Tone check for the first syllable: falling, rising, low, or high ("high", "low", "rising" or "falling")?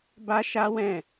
high